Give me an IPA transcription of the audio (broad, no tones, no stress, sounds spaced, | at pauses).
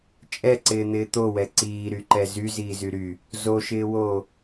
t͡ʃʼ ɛ ǀ ɪː n̪ ɪː t̪ o w ɛ ǀ iː ɾ y ǃ ɛ z y z iː z y ɾ y | z o ʃ ɪː w oː